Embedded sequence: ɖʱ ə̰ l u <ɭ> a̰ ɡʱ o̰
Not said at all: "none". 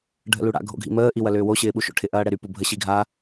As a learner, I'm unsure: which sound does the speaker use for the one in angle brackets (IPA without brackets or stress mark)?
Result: ɽ